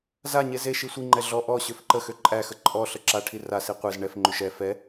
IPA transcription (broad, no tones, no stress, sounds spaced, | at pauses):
z a ɲ e z e ʃ i sʷ i ŋ͡ǃ ɛ ɮ ɔ ʔ ɔ ɕ ø f ǃ ə x ø ǃʼ æ x ə ǃʼ ɔ ɬ ə ǁ a ʈʰ i r a s i qʷ e z ɳ ɛ f ŋ͡ǃ ø ʃ ɛ f ɛ